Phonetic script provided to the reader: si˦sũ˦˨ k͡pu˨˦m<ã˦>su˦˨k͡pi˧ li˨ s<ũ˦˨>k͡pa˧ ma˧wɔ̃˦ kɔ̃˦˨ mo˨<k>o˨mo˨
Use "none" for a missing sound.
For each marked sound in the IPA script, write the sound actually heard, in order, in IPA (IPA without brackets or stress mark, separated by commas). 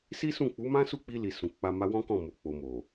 ã˦, ũ˨, k͡p